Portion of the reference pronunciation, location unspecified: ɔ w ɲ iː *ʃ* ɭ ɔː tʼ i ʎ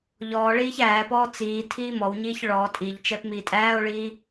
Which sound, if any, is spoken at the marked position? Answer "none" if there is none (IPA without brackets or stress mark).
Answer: ç